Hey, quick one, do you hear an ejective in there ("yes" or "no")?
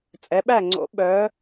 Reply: yes